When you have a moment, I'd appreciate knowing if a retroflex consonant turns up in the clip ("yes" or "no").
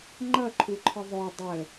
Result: no